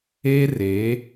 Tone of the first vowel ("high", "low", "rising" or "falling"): high